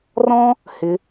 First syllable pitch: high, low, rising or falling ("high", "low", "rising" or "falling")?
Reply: high